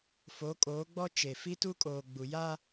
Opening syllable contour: rising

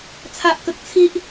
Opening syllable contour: high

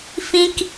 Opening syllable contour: high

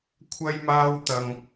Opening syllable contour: high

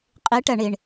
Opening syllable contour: rising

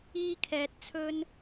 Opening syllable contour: high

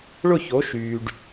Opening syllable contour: falling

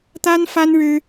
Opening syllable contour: high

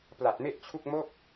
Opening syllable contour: low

